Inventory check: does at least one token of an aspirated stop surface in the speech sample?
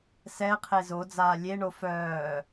yes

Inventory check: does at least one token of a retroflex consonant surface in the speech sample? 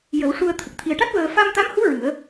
yes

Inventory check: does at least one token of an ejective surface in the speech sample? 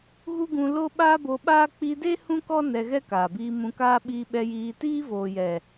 no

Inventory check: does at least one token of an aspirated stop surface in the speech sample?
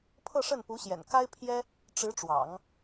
yes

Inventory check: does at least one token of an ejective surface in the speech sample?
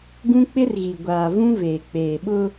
no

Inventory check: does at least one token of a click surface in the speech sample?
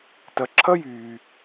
yes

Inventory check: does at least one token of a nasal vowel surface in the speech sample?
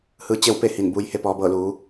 no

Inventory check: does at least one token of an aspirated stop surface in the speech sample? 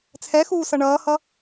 yes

